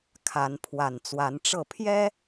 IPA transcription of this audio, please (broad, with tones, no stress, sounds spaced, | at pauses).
kʰ a˨˦ n pʰ w a˨˩ n t͡s w a˨˦ n ʈ͡ʂ ɤ˥˨ pʰ j ɛ˦